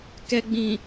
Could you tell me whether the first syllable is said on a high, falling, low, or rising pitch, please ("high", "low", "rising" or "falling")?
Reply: low